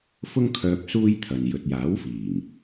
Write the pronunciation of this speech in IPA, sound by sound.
f ʊ˥ ŋ kʰ œː˧ p̚ s uː˥ j t̪ʰ ɐ˨ n j ɵ˨ t̚ j aː˨˥ w f iː˨˩ ŋ

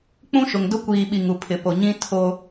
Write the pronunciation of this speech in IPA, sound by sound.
k͡p ũ˦ ʃ ʊ˨ ŋ d ʊ˦ kʷ iː˨ ɓ i˨ ŋ u˨ pʰ ɪ˨ p o˨ ɲ ĩ˦ tʰ o˦

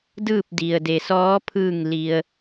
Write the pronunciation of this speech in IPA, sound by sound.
d ɯː˥˨ p̚ d i˩ ə̯ d e˩ s ɔː˧˥ pʰ ɯː˧˩ ŋ l i˩ ə̯

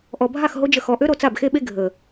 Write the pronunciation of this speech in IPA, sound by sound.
ʔ ɔ˨ bʱ a˦˨ x ɦ o˦ d͡ʒ ə˧ x ɔ˨ ʔ ø˦ ɾ o˧ t͡s a˦˨ b x e˦ ɓ e˦ ɡʱ ə˨

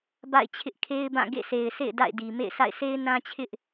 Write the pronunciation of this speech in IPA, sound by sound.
b a̰˦˨ ɪ̯ t͡ɕʰ ɪ˦ ʔ kʰ e˦ ɪ̯ b ã˦˨ ɡ ḛ˦˨ sʰ e˨ ɪ̯ s ḛ˦˨ ɪ̯ d a̰˦˨ ɪ̯ d i˨ m ḛ˦˨ ɪ̯ s a̰˦˨ ɪ̯ sʰ e˦ ɪ̯ n ã˦ t͡ɕʰ ɪ˦ ʔ

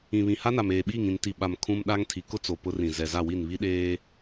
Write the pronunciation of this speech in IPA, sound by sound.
ĩ˨ β ĩ˨ h a˦ n a˨ m eː˨ ɓ iː˦˨ ŋ ĩ˨ n t i˨ ɓ a˨ m kʰ ũ˦ m ɗ a˦ ŋ tʰ i˨˦ k ʊ˦ t͡s o˨ p ʊ˦ r ĩ˨ z ɛ˨ z a˦˨ w i˦˨ n β i˦ ɗ eː˦

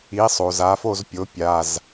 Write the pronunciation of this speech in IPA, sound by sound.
i˩˥ sˤ o˩ z a˩˥ f o˥˨ z pʲ o˩˥ pʲ a˩˧˩ z

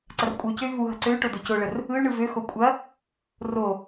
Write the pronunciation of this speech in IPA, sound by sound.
ǀ ɐ r kʷʼ ɯ y̯ c ø y̯ v u ɦ ɐ ǀ ø y̯ ʈ o d o c o ɭ ə r | ɯ y̯ ɳ ɯ v ø x o kʷʼ ɐ | r o

